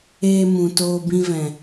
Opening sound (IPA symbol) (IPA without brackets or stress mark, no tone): eː